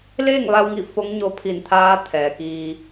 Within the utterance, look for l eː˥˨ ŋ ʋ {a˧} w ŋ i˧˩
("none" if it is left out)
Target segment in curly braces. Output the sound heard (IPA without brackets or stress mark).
a˧